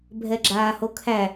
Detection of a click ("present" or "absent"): present